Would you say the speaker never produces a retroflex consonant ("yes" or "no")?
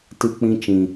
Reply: yes